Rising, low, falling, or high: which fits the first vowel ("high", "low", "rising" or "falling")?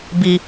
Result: low